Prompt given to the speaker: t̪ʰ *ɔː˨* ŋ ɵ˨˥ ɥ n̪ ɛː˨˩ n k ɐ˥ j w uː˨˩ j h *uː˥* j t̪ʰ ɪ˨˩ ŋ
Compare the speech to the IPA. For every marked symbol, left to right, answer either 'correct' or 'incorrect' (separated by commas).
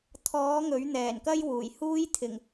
incorrect, correct